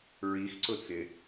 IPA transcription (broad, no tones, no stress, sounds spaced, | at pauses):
ɹ i x ǀ ʊ t͡s ɪ